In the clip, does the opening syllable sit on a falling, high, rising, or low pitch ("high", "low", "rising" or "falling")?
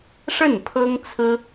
falling